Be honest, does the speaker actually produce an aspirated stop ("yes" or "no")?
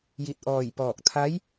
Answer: yes